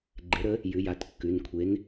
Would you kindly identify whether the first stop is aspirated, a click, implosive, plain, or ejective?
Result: click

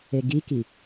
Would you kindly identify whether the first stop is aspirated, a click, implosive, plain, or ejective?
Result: plain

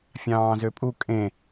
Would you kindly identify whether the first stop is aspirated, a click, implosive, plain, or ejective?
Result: ejective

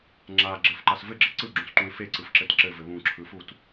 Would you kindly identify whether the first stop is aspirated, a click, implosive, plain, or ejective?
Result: click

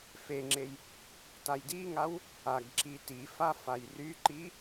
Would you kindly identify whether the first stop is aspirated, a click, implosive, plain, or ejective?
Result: click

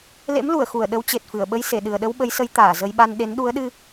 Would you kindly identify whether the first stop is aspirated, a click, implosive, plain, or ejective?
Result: implosive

